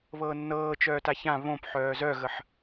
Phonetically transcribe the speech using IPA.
β ɤː nː ɤː t͡ʃ œː t a ç ã β õ p ħ œː z œ ɣ ə ħ

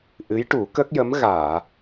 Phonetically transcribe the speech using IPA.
ʔ ɨ˧˥ j ʈ u˨˩˦ k ə˦˥ k̚ j ə˧˥ m ɣ aː˨˩˨

